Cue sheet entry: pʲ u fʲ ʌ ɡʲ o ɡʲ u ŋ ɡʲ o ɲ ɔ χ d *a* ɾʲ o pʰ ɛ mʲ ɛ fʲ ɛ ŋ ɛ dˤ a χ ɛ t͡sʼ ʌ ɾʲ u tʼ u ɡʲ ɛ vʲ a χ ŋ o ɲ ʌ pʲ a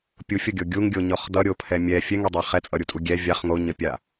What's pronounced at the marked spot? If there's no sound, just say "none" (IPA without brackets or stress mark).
ʌ